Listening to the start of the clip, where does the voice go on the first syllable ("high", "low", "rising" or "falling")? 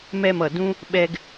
falling